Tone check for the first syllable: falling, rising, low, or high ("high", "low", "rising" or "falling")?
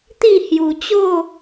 falling